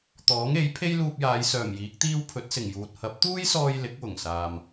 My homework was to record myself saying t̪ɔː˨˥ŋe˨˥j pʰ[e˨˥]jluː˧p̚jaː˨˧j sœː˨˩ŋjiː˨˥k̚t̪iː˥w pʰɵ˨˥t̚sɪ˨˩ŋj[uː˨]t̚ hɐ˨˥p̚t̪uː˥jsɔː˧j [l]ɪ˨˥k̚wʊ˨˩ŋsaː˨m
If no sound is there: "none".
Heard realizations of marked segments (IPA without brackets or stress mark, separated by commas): e˥, uː˨, l